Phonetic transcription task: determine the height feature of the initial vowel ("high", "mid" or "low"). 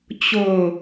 mid